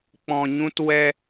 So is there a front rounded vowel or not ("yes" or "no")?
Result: no